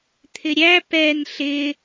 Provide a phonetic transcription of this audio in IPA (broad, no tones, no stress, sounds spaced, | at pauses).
t̪ʰ ɪ ɾʲ æ p ɛ n ɬ ɪ